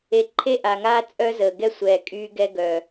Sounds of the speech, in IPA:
e˨ǃʰe˦ʔaː˨ŋaː˦ t͡sʼœ˦zəː˨ɡɛ˦sʷɛː˨ kʼyː˦ɡɛ˦ɡœ˨

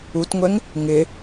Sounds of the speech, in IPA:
utŋʷɛŋ | ŋɪ

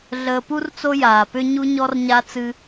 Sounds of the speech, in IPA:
ɮəː˧pu˦rt͡so˦ jaː˨pʏ˦ ɲu˦ɲɔ˦rɲa˦ t͡sɨ˧

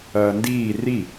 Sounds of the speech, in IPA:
ɐːndiː ri

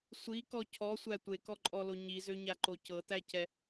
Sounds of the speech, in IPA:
sʷikɔ cʰɔsʷæ tʷekɔǃʼɔlo ɲizøɲaǃo cɤtæcɛ

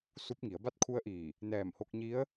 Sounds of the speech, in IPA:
su˧p̚ ŋi˩˧ə̯ba˥˨t̚ kʰu˧˥ə̯ʔiː˧˩ | nɛː˧˩mho˧k̚ɲi˧˥ə̯

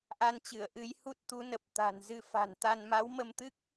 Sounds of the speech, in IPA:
ʔa˧nt͡ɕɨ˧˩ə̯ ʔɨ˨˦j hu˦˥t̚t̪u˨˦nə˨˩p̚ t̪a̤˨˩nzɨ˧ fa̤˨˩nt̪a˧n ma˨˦wmə˧mt̪ɨ˦˥k̚

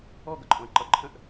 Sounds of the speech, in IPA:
ɔ ɡʌǃʼɔ̃ə̯ǃʌ ǃʰə̃ʔ

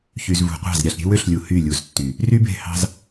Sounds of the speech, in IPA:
çy˨zvṳ˨qʷɑ̤˦˨z ɾʲɑ˨ɬɾʲe̤˦wø˦ɬlʲu˨ hy˦˨lʲu˨ztːy˨ | ry˦be̤˦˨hɑ̤˦z

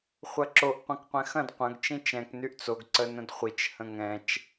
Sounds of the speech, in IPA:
χʷɐǁoʔ qʷɐ̃kqʷɛ̃xɐ̃d qʷɐ̃ɡ t͡ʃĩt͡ʃɛ̃k nyʔt͡soɡ ǀənə̃dχʷit͡ʃ hə̃ŋɛ̃t͡ʃ

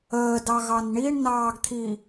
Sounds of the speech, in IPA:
əːdɑ ɣɑnɳiɳnɑːɡt̪ʰi

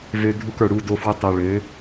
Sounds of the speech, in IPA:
vø˧ dʱu˧kə˞˨ɽu˧ do˧fwʏ˧ tˤu˨ɭø˨˦

